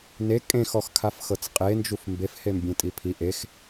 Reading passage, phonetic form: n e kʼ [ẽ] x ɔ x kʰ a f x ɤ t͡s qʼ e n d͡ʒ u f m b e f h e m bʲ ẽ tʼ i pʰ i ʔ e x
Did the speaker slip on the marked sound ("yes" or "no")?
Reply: no